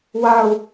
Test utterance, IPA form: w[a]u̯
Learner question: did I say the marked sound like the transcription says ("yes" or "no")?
yes